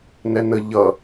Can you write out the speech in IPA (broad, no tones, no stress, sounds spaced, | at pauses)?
n ɛ n ə ʎ ʌ